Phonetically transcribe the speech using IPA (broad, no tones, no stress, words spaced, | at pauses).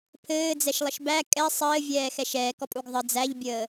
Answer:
pʰɘːd͡zɛʃlˠəʃ bæ kʼɛ sˤɘːvʲɛːxɛʃ ɛːkɔpʼuɡ ðˤɘ d͡zæʎbʲəː